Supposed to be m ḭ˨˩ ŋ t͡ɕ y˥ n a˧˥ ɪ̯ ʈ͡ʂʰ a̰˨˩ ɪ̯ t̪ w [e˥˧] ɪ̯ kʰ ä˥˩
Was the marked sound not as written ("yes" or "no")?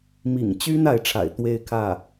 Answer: no